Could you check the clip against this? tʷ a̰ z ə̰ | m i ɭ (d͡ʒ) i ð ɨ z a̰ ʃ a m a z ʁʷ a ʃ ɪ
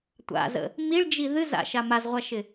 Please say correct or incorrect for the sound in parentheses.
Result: correct